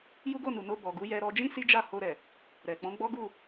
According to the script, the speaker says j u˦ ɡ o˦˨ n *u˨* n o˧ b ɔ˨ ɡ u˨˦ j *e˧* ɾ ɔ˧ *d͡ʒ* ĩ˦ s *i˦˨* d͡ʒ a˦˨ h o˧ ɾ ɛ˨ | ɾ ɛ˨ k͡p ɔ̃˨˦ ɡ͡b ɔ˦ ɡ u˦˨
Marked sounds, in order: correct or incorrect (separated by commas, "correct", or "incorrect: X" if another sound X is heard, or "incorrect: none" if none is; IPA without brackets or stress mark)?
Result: correct, incorrect: ɛ˧, correct, incorrect: i˦